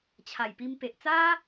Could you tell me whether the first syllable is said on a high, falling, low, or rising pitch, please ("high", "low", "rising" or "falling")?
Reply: low